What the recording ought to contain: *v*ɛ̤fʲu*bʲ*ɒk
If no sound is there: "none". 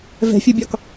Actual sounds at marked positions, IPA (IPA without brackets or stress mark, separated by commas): v, bʲ